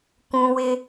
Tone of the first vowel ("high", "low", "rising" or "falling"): high